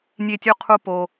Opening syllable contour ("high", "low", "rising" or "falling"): high